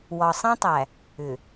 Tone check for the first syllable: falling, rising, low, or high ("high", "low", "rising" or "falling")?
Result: low